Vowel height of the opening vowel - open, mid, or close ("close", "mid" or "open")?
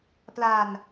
open